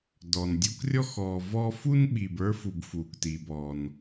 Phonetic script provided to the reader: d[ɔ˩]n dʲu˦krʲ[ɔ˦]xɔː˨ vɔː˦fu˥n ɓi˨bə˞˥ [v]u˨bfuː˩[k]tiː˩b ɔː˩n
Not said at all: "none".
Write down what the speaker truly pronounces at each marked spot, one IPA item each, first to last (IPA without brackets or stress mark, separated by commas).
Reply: ɔ˩, ɔ˥, f, k